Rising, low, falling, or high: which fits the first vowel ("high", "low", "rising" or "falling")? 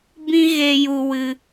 high